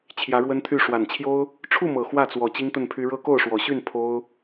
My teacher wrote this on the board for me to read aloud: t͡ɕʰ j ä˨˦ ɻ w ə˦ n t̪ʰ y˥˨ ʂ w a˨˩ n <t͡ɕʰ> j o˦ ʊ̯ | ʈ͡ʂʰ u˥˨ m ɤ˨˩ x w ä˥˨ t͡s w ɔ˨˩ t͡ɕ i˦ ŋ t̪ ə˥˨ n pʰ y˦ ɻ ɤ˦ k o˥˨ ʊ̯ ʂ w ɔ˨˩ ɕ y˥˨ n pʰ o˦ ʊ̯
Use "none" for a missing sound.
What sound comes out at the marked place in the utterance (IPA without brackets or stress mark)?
t͡ɕʰ